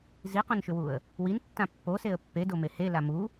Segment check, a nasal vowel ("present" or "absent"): present